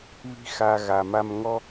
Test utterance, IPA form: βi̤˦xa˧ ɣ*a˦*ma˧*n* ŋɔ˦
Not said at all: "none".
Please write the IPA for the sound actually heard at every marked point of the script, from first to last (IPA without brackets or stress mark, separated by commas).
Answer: a˨, m